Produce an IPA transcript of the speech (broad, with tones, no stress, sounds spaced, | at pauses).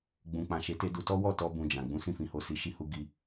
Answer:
ɡ͡b ũ˨ k͡p ã˨ ʃ e˨˦ t e˧ d u˧ t ɔ˦ w ɔ˦˨ t ɔ˧ b ũ˧ d͡ʒ ã˨ ɡ͡b ũ˨˦ s ĩ˦˨ f ĩ˧ h o˧ s i˧ ʃ i˦ h u˦ ɡ i˧